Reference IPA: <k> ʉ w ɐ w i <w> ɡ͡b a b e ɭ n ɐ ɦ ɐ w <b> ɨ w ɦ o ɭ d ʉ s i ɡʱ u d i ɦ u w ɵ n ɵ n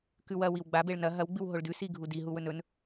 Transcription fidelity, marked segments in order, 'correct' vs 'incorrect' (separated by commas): correct, correct, incorrect